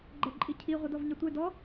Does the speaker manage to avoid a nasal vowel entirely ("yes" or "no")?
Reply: yes